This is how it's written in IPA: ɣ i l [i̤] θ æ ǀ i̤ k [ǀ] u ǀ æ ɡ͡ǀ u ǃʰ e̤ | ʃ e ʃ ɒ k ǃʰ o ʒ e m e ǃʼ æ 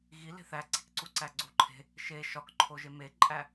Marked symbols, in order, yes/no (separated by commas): no, yes